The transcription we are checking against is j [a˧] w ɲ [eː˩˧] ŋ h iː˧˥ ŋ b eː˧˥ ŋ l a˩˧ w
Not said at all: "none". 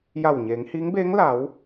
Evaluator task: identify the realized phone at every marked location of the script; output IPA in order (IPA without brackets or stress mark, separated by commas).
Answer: a˧˩, eː˩˧